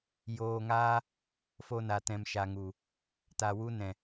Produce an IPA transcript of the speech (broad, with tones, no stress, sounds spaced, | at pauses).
j oː˧ ŋ aː˦ | f o˧ n a˨ t ɛ̃˨ m ʃ a˨ ŋ u˨ | t a˨ w u˧ n ɛ̃˨